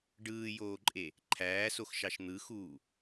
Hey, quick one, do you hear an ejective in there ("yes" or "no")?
yes